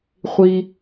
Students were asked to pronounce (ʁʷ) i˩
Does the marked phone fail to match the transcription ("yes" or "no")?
yes